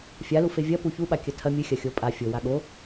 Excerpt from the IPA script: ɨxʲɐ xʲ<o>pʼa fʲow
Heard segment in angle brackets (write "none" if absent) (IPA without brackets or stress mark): o